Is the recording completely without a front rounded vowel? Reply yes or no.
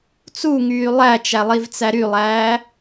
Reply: no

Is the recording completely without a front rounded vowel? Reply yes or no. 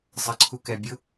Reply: yes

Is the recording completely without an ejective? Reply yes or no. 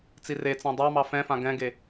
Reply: yes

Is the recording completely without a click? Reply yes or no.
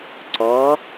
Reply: no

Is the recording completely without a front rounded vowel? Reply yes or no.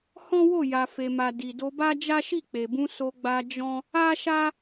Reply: yes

